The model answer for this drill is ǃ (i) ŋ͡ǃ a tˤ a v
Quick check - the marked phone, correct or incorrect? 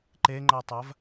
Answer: incorrect